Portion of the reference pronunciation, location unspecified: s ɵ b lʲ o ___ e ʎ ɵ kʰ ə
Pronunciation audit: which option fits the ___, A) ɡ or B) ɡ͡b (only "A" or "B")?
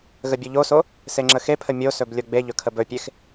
B